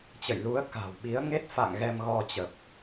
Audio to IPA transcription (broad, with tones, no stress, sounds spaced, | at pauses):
t͡ɕ ə̰˧˨ j l u˨˦ ə̯ k a̤˨˩ w ɓ i˨˦ ə̯ ŋ e˦˥ t̚ f a̰˧˨ ŋ ɣ ɛ˧ m ɣ ɔ˧ t͡ɕ ə˨˩ p̚